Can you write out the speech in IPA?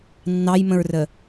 nː ɑ j m ə̃ ɹ r ə

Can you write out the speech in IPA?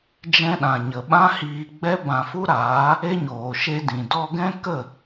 d͡ʒ ɛ̃˧ ɗ ã˨ ɲ ə˨ ɓ ã˦ h iː˧ ɡ͡b ɛ˦ b ã˧ f u˦ ɾ aː˨˦ | e˦ ɲ oː˨ ʃ e˧ d ĩ˨ d ɔ˧ ɡ ɛ̃˦ k ə˦˨

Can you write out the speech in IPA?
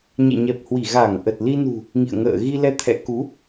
ɲ ɛ̰˧˨ ɲ ɛ˨˩ p̚ h w i˧˩ ɣ a˧˩ ŋ ʔ ə˨˩ t̚ l i˧ n ṳ˨˩ | ŋ ḭ˧˨ ə̯ ŋ ə̰ː˧˨ ɣ i˧ l ɛ˧ t̪ʰ ɛ̰˧˥ k u˨˦

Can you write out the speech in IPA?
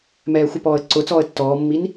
m ɛː xʷ ɪ p ɔː ə̯ ǀ ʊ t͡s ɔː ə̯ tː ɔː mː i n

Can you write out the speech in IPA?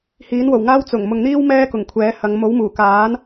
h iː˨˥ n w o˨˩ w ŋ aː˥ w t͡s ʊ˨˩ ŋ m ʊ˨ ŋ n̪ iː˥ w m ɛː˥ k ʊ˨˩ ŋ kʷʰ ɛː˨˥ h ɐ˨˧ ŋ m o˨˥ w m uː˨˩ k aː˨˥ n

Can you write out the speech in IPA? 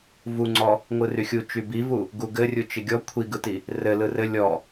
v u ŋ͡ǀ ɔ | ŋʷ ɯ r y xʲ u t͡ʃ y b i v u | ɡ u ɡ ɘ rʲ u t͡ʃ ɪ ɡʲ ɔ kʷʰ i ɡ ɯ t i | r ɘ l ɯ r ɘ lʲ ɔ

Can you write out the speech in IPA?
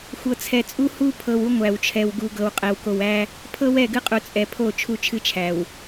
xʷ ɤ˨ t͡sʰ ɛ˨ t͡sʼ u˦ h u˦ pʰ ɤ˨ w u˦ ŋʷ æ˨ w t͡ʃʰ ɛ˨ w ɡ u˨ ɡ ɤ˨ w qʼ ɛ˨ w k o˨ w æ˦ | pʰ ɤ˦ w ɛ˦˨ ɡ ɨ˦ qʼ u˨ t͡sʼ ɛ˨ pʰ o˦˨ t͡ʃʰ u˦ t͡ʃʰ ɨ˦ t͡ʃʰ æ˨ w

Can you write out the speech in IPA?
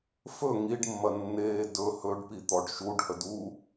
f ɵ ŋ i ɖ mː ɐ nː eː d ɵ h ɵ ɖ p i t̪ ɔ ɖ ʃ u ɖ h ə d u

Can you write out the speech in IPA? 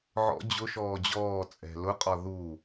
ʕ ɔ̰ d͡ʑ ʊ ʃ ɔː d͡ʑ ɔː t͡sʼ ɛ̤ l ʊ qʼ ɒ ð u

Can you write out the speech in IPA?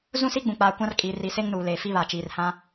z ũ˦ s i˦ ɡ͡b ũ˨ k͡p aː˨ kʷ ã˦ r kʼ iː˨ r i˨˦ s e˦ ŋ n uː˨ l eː˨ f i˦ β a˨ t͡ʃ iː˨ r h ã˦

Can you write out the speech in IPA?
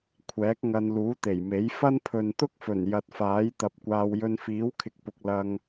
kʷʰ ɛː˨˥ k̚ ŋ ɐ˧ n l uː˨˥ t̪ e˨˩ j m e˨˥ j f ɐ˥ n pʰ ɵ˨ n t̪ ʊ˥ k̚ f ɵ˨˩ n j ɐ˨ t̚ f aː˨˥ j t̪ ɐ˧ p̚ kʷ aː˧ w j ɵ˧ n f iː˨˥ w kʰ ɪ˨ k̚ p ʊ˨ k̚ l ɐ˧ ŋ

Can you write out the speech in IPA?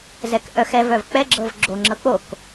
z ɛ k ʔ œ x ɛ v œ v k͡p ɛ ɡ͡ǁ ɤ v ɡ͡ǁ o ŋ͡ǁ ɤ k͡p o k

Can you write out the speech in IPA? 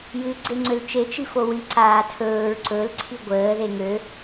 j ɨ ɡ͡ǀ e ŋ͡ǀ ø l t͡ʃ e t͡ʃ i f o w i ǀ aː tʰ ɵː ɹ ǀ ɵ l ǀʰ i ɡʷ əː ð e ŋ ø

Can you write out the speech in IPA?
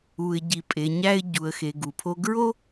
u˩ ɪ̯ ɟ i˩ pʼ e˩ ɲ æ˧ ɪ̯ ɟ u˩ ə̯ x e˩ ɡ u˩ pʰ o˧ ɡ ɹ o˥

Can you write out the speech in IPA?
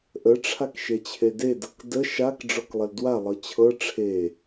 ʔ ə ʈ͡ʂʰ a k ʃ e t͡ɕʰ e d e d ɤ k d ə ʃ a k ɖ͡ʐ ɔ k lˠ ə l d w a lˠ ɤ t͡ɕʰ ɤ ʈ͡ʂʰ e

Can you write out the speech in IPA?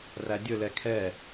r æ dʲ ɵ l ɛ kʰ ɛ

